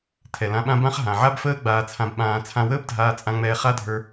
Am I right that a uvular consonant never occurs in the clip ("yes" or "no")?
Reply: no